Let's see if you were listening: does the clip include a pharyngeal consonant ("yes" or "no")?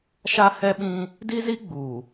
no